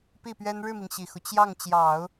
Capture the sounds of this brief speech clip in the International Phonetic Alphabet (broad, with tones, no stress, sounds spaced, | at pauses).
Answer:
p i˥˩ p ɥ ɛ˥ n ɻ ɻ̩˥˩ m i˩ ŋ ɕ i˨˩ x u˦ t͡ɕ j ɑ˥˩ ŋ t͡ɕ j ɑ˨˩˦ ʊ̯